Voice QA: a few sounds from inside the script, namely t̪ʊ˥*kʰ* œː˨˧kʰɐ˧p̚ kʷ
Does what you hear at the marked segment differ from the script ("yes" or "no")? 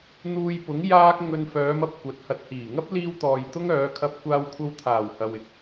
yes